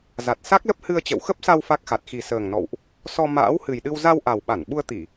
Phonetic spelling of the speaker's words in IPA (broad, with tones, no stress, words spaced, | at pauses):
za˨˩t̚sa˦˥k̚lə˦˥p̚hɨ˧ə̯ t͡ɕə̰˧˨wxə˦˥p̚sa˧w fa˦˥k̚xa˨˩t̚ xi˨˩səː˨˩ŋnɔ̰˧˨wʔ | sɔ˧ ma̰ː˧˥whɨ˨˩jɗɨ˧w za˧wʔa˨˩wɓa˧˩n ɓu˧ə̯t̪i˧˩˨